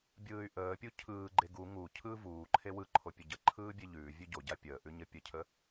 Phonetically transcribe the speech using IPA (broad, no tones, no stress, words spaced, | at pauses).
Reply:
bʲɯːy̯ʔəːpʲu cʰɯːɡ͡ǃe ɡu ŋu cʰɯːvuːǃʰe wɯǃʰo pʲəɟəǃʰɯː bʲeʎʉːvʲʉ ɟoɟa pʲəːʔʉ ɲəpʲəcʰə